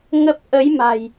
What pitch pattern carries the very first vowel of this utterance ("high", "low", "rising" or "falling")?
low